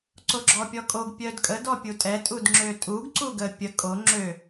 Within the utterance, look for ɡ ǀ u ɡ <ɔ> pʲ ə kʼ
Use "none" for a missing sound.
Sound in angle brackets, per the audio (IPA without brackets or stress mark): ə